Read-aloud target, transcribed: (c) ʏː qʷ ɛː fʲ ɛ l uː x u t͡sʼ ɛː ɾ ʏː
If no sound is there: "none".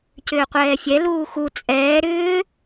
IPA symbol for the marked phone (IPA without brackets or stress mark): c